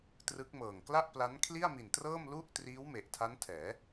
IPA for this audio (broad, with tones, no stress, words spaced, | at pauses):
trɯ˦˥k̚mɤː˨˩ŋ kla˥˩ʔpla˦˥n kʰli˥˩a̯mi˨˩ntrɤː˥˩m lu˥˩ʔ triː˦˥w me˨˩ʔtʰa˦˥ntʰɛː˩˦